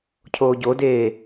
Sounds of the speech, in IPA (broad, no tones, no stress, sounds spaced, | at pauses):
cʰ oː ɟ o d eː